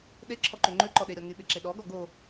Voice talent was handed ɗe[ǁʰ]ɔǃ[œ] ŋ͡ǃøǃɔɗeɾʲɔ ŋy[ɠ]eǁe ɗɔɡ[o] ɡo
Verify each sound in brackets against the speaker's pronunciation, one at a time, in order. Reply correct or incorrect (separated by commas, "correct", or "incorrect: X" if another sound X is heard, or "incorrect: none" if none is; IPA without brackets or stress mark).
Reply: correct, incorrect: ø, incorrect: ɓ, incorrect: ɔ